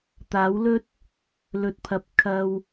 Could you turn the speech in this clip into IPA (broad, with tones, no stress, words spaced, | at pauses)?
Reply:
t̪aː˨˥wlɵ˥t̚ | lɵ˨t̚pʰɐ˨˥p̚ kʰɐ˧w